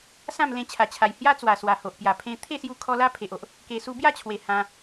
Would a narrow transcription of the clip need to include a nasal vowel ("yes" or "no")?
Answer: yes